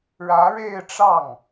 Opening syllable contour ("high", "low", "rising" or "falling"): rising